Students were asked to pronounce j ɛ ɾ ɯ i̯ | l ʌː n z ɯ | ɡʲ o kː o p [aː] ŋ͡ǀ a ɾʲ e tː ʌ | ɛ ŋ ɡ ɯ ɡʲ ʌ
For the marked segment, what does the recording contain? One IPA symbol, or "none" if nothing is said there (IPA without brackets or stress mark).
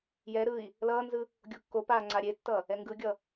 aː